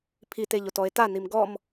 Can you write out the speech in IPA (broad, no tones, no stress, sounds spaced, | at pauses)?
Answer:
pʰ i t e ʎ o t ɔ e̯ t a n i m ɡ ɔ m